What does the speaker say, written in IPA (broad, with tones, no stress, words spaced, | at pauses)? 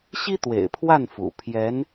ɕi˥t̪wḛ˨˩ɪ̯pʰwa˥˩n fṵ˨˩ pʰjɛ˧˥n